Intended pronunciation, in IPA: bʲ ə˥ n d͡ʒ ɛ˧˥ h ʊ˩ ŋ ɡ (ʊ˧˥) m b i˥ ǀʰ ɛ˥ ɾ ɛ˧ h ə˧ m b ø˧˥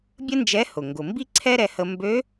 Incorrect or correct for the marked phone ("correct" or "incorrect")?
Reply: incorrect